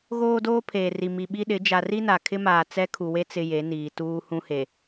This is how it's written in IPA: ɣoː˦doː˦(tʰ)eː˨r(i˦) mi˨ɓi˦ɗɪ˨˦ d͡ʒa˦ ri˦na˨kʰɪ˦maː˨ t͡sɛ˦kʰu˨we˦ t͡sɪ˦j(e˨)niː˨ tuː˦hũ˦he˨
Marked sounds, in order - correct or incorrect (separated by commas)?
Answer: incorrect, incorrect, incorrect